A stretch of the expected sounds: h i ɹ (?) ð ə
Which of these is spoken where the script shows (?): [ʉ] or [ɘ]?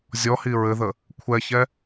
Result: ɘ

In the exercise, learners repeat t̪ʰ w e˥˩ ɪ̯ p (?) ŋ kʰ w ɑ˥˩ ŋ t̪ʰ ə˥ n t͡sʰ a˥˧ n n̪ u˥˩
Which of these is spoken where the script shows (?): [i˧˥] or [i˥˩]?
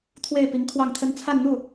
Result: i˧˥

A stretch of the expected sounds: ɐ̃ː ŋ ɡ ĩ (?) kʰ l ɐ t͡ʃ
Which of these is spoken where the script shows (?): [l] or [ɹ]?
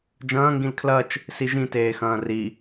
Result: l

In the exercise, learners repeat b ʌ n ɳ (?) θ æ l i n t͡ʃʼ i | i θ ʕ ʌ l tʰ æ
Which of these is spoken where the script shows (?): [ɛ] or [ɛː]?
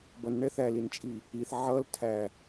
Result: ɛ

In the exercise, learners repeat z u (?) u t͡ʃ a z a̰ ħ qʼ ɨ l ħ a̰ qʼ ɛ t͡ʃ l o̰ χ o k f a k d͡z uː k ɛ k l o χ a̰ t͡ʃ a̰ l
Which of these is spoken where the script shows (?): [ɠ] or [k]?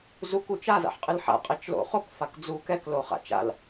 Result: k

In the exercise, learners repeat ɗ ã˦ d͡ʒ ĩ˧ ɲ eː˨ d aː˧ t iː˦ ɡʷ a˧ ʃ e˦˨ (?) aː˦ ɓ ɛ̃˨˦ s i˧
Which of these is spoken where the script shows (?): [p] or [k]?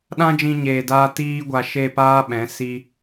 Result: p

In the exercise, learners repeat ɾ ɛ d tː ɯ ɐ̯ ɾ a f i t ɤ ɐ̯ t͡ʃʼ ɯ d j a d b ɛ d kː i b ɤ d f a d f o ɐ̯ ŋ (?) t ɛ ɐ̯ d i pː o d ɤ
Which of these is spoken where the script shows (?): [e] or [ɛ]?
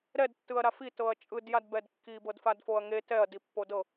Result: e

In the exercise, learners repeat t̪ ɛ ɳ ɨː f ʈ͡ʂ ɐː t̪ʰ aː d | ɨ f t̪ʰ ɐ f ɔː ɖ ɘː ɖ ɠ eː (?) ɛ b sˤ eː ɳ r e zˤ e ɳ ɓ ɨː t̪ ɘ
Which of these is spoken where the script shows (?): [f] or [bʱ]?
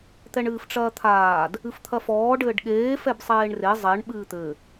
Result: f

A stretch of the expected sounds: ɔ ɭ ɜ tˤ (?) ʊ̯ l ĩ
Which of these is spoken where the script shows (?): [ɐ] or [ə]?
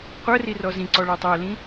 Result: ɐ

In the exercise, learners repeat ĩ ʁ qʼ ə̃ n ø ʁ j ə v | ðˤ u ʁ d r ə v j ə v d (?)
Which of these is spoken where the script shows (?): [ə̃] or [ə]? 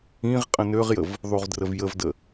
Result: ə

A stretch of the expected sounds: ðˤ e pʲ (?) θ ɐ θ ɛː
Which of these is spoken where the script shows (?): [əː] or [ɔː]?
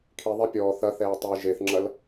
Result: ɔː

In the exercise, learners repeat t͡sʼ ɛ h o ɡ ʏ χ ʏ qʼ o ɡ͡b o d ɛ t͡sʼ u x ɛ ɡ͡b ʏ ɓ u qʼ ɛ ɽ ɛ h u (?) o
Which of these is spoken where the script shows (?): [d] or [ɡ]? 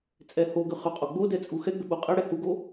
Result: ɡ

